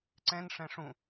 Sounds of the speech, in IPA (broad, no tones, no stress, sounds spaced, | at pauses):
ǀ ɛ̃ n ʂ ɛ̃ ʂ ũ